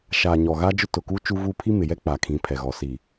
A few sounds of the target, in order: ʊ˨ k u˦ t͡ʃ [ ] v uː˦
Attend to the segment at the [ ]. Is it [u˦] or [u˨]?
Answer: u˦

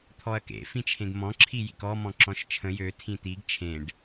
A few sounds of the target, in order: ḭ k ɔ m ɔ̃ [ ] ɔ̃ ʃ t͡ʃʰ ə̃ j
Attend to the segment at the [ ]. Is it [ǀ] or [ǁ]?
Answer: ǁ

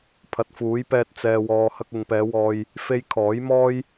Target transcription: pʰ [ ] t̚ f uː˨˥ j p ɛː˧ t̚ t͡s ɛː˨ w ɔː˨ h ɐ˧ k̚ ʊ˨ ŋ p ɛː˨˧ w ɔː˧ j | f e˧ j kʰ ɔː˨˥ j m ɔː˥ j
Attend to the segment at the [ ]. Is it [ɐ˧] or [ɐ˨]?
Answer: ɐ˨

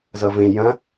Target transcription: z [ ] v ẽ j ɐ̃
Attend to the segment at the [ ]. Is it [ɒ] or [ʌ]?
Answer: ʌ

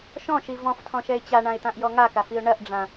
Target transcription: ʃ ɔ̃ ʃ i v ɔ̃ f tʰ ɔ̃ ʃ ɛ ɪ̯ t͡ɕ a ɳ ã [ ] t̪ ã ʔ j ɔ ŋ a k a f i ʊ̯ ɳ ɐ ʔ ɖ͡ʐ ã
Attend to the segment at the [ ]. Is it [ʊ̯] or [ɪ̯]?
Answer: ɪ̯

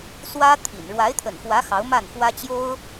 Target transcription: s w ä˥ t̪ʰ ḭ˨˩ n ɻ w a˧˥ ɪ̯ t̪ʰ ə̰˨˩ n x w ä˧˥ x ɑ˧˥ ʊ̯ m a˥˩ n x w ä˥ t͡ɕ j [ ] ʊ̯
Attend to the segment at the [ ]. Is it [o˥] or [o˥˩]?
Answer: o˥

